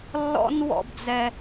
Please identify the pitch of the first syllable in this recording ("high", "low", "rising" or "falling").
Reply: high